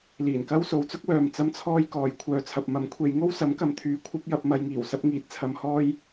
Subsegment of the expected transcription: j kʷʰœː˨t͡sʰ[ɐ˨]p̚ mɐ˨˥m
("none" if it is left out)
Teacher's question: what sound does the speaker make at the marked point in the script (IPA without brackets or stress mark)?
ɐ˨